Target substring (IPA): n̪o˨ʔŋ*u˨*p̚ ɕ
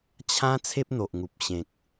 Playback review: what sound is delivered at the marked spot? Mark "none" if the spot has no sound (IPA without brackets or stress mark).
u˨